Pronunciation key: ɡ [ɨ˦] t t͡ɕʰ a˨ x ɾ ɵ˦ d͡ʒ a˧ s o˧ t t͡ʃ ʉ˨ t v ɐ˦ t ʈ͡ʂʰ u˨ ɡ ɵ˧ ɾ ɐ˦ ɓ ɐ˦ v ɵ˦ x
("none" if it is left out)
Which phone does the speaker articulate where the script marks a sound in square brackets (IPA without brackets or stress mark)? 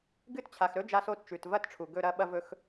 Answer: ɨ˦